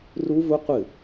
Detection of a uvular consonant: present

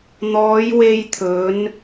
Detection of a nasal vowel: absent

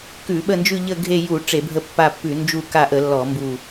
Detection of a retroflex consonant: present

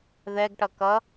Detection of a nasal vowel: absent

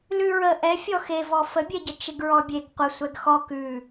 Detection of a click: absent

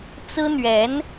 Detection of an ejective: absent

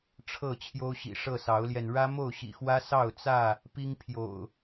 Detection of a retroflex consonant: present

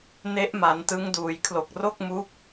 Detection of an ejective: absent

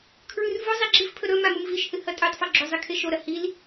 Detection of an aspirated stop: present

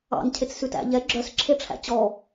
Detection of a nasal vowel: absent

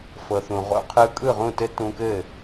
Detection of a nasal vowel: present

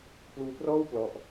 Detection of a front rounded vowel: absent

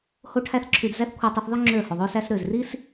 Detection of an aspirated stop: present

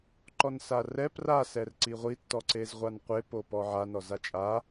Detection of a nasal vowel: absent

